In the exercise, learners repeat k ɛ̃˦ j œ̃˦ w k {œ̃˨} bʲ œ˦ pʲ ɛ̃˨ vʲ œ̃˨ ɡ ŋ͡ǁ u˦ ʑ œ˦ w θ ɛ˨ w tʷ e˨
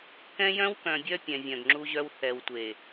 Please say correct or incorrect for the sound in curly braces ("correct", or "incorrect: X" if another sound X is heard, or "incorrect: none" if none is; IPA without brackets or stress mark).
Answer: correct